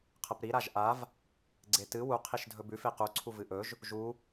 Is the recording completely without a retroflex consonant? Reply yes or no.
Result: yes